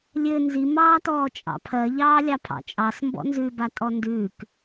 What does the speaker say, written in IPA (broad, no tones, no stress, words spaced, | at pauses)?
lʲɘ nzimɑːtɔː t͡ʃʼɑ̰pʰɜ ʎɑːlʲɑpʰɑ̰t͡ʃʼɑs mbɔ̰nzʉbatʼɔ ndʉːk